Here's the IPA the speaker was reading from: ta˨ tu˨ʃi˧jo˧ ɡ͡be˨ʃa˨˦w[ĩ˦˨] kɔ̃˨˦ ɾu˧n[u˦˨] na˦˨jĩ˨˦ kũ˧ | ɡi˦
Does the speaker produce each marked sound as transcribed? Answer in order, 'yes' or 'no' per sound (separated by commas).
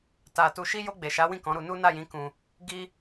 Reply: yes, no